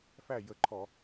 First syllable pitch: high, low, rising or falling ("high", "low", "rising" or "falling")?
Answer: falling